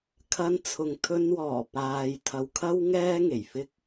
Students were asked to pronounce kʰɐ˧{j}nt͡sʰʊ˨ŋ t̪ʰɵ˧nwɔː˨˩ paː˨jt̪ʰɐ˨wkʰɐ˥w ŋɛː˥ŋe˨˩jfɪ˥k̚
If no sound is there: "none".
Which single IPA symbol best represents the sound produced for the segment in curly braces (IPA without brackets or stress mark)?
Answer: none